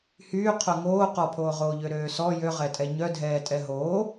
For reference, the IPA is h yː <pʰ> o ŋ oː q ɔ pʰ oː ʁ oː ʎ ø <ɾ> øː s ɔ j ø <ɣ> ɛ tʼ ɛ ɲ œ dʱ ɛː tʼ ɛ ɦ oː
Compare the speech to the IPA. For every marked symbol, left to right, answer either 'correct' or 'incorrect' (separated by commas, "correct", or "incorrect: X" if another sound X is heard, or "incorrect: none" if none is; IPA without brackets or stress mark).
incorrect: qʰ, correct, incorrect: ʁ